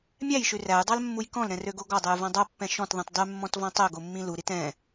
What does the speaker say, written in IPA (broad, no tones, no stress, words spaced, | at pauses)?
mʲæjʃʉ ræjdˤɑlmːuj kɔ̃lɾɛ̃røɡo ɡɔdˤʉjvɔ̃ dˤopːɛ̃ ʃɔ̃tðˤĩt dˤymːɔ̃tvɔ̃ tˤøɡomːĩ luɾit ɛ̃